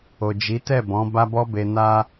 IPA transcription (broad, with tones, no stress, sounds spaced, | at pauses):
o˨ d͡ʒ i˨˦ t ɛ˦˨ b ɔ̃˨˦ b a˦ b ɔ˦ b e˧ n a˧